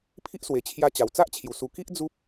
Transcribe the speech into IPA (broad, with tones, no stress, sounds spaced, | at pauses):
pʰ i˦ ʔ s w e˨˩ t͡ɕʰ j a˧ t͡ɕ a˨˩ w t͡s a˦ ʔ t͡ɕʰ j u˨˩ s u˨˩ k i˦ ʔ d͡z u˦ p̚